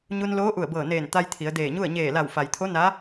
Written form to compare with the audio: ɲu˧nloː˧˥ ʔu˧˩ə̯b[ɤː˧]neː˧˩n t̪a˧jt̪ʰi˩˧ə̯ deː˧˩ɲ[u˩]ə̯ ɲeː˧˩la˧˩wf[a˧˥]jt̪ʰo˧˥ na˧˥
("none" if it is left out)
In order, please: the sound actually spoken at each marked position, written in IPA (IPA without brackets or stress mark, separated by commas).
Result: ɤː˧˩, u˥˨, a˩